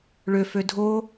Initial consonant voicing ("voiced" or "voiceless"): voiced